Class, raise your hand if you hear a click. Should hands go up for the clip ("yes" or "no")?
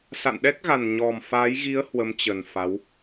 no